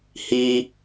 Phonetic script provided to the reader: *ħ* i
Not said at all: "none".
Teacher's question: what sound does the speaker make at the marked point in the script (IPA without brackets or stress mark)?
h